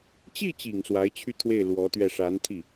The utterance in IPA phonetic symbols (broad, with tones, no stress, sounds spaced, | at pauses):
t͡ɕ i˥˩ t͡ɕ i˨˩ ŋ s w a˧˥ ɪ̯ t͡ɕʰ y˥˧ t̪ʰ w e˥˩ ɪ̯ l w ɔ˧˥ t̪ ɥ ɛ˥˩ ʂ a˧˥ n t̪ʰ i˥˩